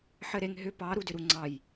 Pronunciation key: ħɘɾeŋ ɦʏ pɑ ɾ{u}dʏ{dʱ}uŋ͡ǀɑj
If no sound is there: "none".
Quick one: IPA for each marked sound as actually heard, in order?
u, ɾ

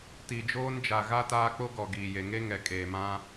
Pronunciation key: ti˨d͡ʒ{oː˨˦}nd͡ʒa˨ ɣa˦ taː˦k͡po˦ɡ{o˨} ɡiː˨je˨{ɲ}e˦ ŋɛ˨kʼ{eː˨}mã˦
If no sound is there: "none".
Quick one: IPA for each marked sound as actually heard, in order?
oː˦, ɔ˨, ŋ, eː˨

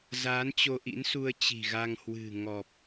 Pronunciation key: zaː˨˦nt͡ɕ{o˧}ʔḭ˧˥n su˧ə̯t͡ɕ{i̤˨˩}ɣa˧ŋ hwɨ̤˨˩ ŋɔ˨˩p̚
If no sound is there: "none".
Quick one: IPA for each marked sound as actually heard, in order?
o˧, i̤˨˩

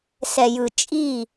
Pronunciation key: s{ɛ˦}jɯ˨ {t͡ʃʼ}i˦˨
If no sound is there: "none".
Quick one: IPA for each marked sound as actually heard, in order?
ɛ˨, t͡ʃʼ

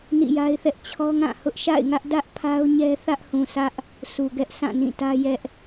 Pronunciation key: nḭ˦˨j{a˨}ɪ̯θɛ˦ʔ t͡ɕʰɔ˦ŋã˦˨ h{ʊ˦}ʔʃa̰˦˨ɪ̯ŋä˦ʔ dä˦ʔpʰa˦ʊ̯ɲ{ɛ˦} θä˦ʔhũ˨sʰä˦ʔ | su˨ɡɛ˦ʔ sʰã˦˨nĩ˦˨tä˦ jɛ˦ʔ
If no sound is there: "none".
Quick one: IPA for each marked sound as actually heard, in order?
a˦, ʊ˦, ɛ˦

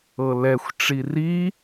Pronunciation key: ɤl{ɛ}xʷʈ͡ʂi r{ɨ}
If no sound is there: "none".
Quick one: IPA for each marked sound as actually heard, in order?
ɛ, i

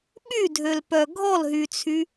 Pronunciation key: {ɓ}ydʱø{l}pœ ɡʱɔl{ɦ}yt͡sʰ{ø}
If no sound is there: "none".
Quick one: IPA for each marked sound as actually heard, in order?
ɓ, l, ɦ, y

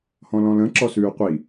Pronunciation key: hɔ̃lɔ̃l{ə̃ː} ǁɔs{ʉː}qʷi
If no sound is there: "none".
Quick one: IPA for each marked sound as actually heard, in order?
ə̃, ʉː

